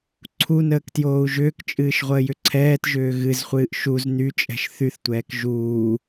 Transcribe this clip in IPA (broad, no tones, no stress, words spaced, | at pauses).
ǀʰunəːktjoːu̯ ʒʏːkt͡ʃʼɨːʃʁʷəːjʏ ǀʰɛːtʒʏː ɣɨzχʷɨːʔ ʃuz nyt͡ʃʼɛ̤ʃ θyθtʷɛːk ʒuː